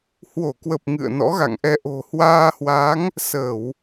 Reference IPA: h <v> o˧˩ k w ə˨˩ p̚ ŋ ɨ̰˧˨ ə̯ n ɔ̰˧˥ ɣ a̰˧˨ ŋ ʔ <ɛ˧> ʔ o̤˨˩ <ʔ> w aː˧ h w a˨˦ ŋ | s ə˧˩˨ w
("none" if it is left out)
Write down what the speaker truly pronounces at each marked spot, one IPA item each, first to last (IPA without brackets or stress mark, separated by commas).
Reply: w, ɛ˧, h